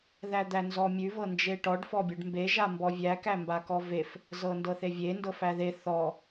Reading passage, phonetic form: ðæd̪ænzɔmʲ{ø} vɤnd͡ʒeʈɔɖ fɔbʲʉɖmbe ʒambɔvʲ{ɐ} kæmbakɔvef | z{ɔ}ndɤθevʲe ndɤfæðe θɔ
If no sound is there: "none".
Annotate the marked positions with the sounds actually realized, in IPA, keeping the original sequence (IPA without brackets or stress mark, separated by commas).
ʉ, æ, ɤ